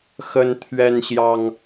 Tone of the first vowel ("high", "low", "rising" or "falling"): high